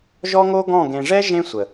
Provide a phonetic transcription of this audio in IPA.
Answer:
ʒɔ˦ŋo˦ ɡɔ̃˦˨ ɡẽ˨ʐɛ˦ ʒẽ˦sʷə˨

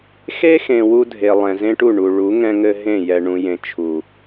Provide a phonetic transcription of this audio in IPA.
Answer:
xe˦xẽ˨ wu˦dʱe˨ lˠɛ̃˨zẽ˦ʈu˦˨ ɳu˨ɭu˨˦ ŋɛ̃˦ŋɘ˦ ɦẽ˦˨jɛ˨ ɳũ˨jẽ˨ t͡ʃʰu˨

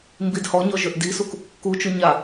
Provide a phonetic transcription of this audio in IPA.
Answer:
mbidhɔɲɔ ʒøʔdisuk | kut͡ʃu ɲa

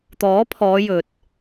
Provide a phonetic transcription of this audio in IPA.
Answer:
t̪ɔː˨˥pʰɔː˨˧ jɵ˨t̚

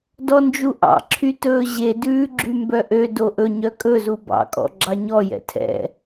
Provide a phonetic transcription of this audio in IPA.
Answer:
dɔnd͡ʒuʔɑ̰ǁʰy tɵːʑedʉː ɡ͡ǁymbœʔø doʔɵɲœ kʼɵzu bɑ̰kʼɔ̰ ɡ͡ǁɑɲɔjɛ̰ tʰɛ̰

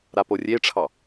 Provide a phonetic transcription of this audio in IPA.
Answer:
ɾaporʲeʈ͡ʂʰɑ

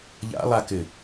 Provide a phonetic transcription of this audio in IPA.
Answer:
ʎa̰lˠakɘ

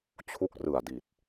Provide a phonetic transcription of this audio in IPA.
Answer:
t͡ɕʰu˦˥k̚ rɯ˨˩a̯ di˨˩t̚

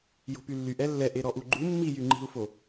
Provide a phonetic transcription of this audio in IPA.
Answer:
jo̤pylːyʔ ɛlːɛʔe ɾɔʔuɡ͡ǃu mːijyŋ͡ǃi̤u̯fo

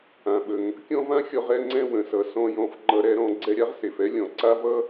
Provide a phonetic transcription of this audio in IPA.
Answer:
ã˩ɓə˩ŋ | kʲɔ̃˥vã˥xʲɔ˧ʁ ɛ˧ŋ͡ǀɛ̃˧ wə̃˩sʌ˩ sɔ̃˧jɔ̃˧fŋ͡ǃʌ˧ ɾɛ˧ɾɔ̃˧ ɡ͡ǀɛ˧ɾʲa˥ʁse˩fɛ˥ lʲɔ̃˩ǀa˥vʌ˥

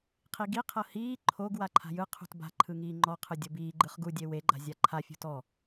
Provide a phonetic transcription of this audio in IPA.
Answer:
qʰiɡi qʰɤhiː ǃʰoɡ waǃʰa̤jɯ qʰṳtba̤ ǃʰɯŋiːŋ͡ǃɔ qʰɯdʲɤbiː ɡ͡ǃɯχɡu dʲewe ɡ͡ǃa̤zʲaǃʰa fʲṳtɔ

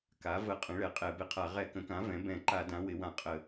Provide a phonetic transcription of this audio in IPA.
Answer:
ka˩˥ və˧˩˧qʼə̃˩˥ ɭɛ˩˥qʼɛ˧˩˧bɪ˧˩˧qʰa˧˩˧ ʁɛ˧˩˧kə̃˩˥kã˩˥ vɛ̃˩˥ bɛ̃˧˩˧ ǃa˧˩˧dã˩˥ wɪ˩˥wã˧˩˧qʼə˧˩˧

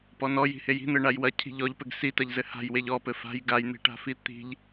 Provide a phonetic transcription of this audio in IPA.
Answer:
pɔnɔ ji̤heji̤n̪ɘ ɳajwɐcʰi̤ ʎɔʎpɘɡ sitɐʎzɘ ha̤jweʎ ɔpɘ fa̤j ɡajn̪i̤ʈa̤fi t̪i̤ʎ

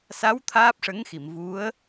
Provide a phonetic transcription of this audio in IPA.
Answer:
sa˧˥w t̪ʰaː˦˥p̚ʂə˧˥ŋxi˨˩˨m vu˧˥ə̯

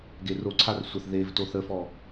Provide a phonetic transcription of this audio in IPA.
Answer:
ɡeroǀʰar sʷəθ ðevtoθ əfɔ

